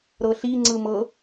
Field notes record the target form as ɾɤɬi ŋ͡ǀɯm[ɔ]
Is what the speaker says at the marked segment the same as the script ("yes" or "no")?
no